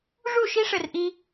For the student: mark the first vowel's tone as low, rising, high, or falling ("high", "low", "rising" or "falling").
falling